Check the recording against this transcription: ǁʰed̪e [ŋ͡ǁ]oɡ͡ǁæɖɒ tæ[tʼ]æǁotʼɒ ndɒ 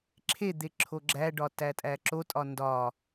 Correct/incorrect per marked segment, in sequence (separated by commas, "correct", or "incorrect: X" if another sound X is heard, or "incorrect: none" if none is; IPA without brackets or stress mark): incorrect: ǁʰ, correct